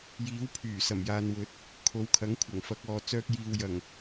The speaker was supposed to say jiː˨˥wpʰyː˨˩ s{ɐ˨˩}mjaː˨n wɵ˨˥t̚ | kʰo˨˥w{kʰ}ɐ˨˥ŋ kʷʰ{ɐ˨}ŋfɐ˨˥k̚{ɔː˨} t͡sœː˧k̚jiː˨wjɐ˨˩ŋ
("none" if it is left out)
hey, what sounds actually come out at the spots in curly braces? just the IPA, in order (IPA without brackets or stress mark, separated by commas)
ɐ˨˩, kʰ, ɐ˨˩, ɔː˨